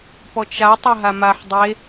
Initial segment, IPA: p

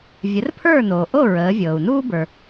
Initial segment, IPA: vʲ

